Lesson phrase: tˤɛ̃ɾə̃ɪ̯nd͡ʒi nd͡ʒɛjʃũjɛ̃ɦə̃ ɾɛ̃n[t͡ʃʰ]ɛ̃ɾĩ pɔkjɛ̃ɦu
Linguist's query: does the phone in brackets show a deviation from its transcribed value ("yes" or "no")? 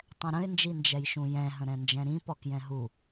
yes